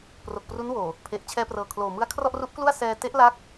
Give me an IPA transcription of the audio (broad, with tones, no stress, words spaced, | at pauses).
pro˨˩k̚pru˦˥nwoː˨˩ | pʰe˨˩ʔ t͡ɕʰɛː˧prɤː˨˩ kʰloː˨˩ mɯ˦˥a̯ kʰrɔ˥˩ʔru˦˥ʔklu˥˩a̯ sɛː˧te˦˥ʔla˦˥k̚